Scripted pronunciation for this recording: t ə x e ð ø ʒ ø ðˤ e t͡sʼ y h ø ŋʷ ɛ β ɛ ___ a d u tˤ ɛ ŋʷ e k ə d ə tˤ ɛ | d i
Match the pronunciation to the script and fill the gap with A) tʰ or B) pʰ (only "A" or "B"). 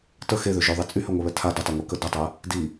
A